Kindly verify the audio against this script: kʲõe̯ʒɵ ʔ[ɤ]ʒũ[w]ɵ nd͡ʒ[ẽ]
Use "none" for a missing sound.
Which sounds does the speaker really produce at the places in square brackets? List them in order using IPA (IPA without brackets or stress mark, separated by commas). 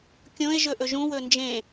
ɵ, w, ẽ